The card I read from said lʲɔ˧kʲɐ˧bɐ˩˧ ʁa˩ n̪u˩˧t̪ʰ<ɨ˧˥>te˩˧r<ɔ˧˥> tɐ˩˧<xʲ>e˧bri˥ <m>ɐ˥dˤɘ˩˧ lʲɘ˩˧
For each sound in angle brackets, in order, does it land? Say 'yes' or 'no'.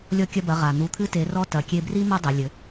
yes, yes, no, yes

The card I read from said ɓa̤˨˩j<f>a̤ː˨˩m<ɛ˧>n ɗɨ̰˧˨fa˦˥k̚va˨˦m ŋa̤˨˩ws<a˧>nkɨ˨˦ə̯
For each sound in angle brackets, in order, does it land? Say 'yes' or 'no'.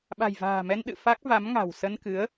no, yes, no

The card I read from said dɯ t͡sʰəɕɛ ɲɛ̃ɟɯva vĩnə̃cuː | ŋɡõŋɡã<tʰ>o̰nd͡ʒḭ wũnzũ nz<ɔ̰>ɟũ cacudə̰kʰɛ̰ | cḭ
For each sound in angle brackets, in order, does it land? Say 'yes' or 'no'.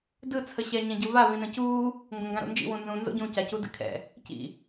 no, no

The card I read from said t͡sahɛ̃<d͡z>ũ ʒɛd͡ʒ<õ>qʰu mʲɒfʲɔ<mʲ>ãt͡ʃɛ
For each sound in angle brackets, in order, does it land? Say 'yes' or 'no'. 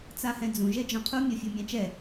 yes, no, yes

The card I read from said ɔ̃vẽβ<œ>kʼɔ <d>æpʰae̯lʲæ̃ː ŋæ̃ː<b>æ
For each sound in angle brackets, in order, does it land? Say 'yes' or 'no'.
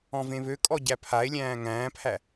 no, no, no

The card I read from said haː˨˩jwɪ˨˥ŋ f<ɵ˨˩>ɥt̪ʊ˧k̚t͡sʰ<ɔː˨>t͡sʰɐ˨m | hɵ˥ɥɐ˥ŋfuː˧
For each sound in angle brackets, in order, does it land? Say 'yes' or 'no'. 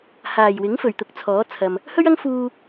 yes, no

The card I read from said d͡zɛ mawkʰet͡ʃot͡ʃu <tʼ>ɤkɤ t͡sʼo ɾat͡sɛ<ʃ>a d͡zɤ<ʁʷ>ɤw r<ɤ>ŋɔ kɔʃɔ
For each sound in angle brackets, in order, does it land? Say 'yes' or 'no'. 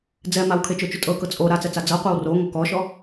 yes, no, no, no

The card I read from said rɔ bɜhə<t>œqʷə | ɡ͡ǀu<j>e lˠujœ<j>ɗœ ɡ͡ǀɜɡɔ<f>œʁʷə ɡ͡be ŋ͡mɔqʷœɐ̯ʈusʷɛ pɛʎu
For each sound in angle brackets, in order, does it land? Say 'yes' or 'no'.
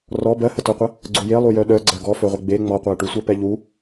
yes, yes, no, yes

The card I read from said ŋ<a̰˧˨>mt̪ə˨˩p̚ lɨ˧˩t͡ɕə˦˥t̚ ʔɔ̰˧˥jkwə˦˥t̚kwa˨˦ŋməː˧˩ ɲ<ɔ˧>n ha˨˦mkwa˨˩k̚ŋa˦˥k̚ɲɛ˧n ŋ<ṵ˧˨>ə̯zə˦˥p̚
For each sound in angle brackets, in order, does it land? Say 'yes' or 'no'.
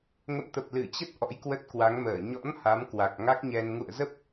no, no, yes

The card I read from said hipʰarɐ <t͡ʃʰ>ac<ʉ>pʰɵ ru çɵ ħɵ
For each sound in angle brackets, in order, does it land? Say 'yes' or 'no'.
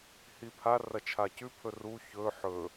yes, yes

